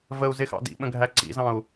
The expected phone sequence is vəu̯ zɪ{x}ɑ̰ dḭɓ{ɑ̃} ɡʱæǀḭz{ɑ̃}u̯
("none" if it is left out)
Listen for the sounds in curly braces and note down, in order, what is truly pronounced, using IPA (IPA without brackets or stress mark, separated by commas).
x, ə̃, ɑ̃